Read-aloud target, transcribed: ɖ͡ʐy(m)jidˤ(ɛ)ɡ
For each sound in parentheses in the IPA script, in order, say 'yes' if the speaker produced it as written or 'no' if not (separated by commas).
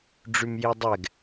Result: yes, yes